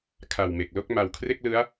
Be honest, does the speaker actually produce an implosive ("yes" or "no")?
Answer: no